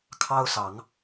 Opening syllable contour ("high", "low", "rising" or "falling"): high